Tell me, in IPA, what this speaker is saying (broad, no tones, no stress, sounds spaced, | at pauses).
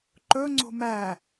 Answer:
ǃ ɵ ŋ͡ǀ o̤ m æ